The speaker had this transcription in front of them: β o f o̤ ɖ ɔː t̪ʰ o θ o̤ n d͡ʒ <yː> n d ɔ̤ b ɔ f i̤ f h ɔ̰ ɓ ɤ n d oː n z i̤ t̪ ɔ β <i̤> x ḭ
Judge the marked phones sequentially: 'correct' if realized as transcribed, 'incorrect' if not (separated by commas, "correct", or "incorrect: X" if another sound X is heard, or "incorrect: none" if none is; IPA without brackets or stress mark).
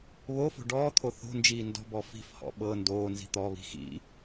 incorrect: iː, correct